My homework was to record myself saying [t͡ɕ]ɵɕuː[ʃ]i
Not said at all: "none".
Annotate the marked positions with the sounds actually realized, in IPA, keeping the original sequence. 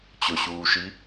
t͡ɕ, ʃ

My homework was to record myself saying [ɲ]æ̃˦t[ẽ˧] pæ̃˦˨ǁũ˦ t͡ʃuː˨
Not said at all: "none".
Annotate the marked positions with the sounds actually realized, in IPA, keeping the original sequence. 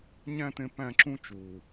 ɲ, ẽ˧

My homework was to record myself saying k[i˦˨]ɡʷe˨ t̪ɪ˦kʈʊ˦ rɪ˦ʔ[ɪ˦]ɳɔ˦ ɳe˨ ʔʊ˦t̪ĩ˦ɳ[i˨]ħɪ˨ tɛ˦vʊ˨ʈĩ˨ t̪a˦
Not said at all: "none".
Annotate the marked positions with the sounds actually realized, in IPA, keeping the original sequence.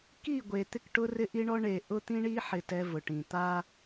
i˦˨, i˦, i˦

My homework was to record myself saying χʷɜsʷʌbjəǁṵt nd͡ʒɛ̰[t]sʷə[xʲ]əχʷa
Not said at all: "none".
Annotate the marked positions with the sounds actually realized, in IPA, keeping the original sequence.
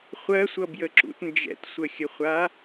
t, xʲ

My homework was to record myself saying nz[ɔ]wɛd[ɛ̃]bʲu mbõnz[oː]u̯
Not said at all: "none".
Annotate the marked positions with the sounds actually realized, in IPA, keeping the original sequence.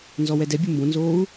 ɔ, ɛ, oː

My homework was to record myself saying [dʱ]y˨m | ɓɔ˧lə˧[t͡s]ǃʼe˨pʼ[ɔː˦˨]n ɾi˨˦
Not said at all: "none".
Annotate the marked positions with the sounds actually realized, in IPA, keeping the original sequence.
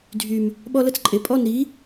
dʱ, t͡s, ɔ˦˨

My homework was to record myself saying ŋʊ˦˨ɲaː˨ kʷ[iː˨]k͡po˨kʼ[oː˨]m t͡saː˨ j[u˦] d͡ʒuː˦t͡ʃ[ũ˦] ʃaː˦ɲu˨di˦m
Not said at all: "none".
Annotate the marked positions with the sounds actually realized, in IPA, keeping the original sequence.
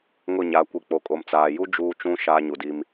i˨, o˨, u˦, ũ˦

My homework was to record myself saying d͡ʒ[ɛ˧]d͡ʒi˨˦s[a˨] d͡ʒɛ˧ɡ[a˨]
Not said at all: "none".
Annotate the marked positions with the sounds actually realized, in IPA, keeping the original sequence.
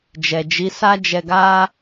ɛ˨, a˦, a˦

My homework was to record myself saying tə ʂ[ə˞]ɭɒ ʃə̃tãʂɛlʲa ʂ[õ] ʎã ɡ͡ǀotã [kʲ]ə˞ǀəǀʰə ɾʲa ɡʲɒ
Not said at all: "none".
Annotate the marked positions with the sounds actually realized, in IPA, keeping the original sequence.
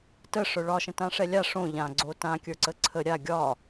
ə˞, õ, kʲ

